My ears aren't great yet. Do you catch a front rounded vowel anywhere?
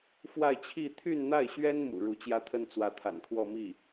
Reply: yes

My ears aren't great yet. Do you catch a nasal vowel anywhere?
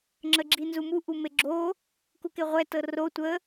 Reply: no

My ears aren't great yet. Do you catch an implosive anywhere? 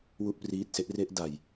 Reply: no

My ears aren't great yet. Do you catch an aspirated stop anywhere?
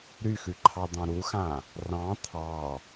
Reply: yes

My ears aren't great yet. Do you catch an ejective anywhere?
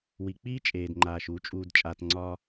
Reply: yes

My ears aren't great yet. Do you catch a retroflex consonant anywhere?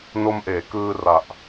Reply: no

